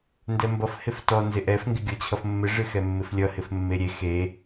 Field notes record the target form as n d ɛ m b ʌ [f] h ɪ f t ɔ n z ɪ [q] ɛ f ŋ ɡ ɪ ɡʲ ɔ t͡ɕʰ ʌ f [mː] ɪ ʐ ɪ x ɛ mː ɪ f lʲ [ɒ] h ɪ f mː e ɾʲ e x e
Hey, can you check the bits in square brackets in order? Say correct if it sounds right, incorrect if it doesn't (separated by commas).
correct, incorrect, correct, incorrect